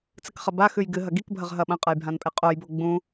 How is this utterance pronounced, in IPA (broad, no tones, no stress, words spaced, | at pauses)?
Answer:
t͡sɨkχɐbaxʉj ɡɨɦɐ ɡikbʱɐʁ ɦɐɓɐ̃qʼɐj bʱãnpʼeqʼojbo ɡ͡bũ